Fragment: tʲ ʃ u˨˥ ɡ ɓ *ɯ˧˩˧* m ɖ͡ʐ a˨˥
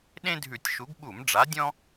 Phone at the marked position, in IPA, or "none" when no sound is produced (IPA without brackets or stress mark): u˧˩˧